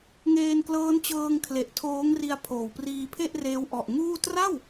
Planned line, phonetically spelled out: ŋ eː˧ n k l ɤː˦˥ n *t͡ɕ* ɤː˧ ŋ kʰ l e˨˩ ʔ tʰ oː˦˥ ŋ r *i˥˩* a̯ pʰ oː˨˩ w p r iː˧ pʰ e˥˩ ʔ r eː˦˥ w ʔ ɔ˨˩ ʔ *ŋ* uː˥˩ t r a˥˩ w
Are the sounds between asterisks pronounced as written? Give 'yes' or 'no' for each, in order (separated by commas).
yes, no, yes